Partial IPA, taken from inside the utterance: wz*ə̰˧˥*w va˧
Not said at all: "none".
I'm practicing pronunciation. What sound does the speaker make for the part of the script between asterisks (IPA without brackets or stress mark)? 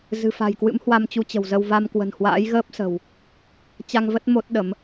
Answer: ə˧